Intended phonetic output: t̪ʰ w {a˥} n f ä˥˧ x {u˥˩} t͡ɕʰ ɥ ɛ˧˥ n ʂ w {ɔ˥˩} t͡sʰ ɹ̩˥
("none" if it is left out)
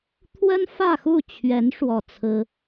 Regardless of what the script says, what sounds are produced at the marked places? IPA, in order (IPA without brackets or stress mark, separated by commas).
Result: ə˥, u˥˩, ɔ˥˩